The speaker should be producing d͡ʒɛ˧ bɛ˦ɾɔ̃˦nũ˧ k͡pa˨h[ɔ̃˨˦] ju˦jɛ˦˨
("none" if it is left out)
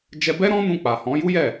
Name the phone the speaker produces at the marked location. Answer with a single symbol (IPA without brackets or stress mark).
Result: ɔ̃˨˦